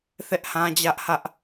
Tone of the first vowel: high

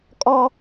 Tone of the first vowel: high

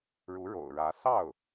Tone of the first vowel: rising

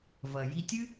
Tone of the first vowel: low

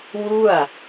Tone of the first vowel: falling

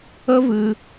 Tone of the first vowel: high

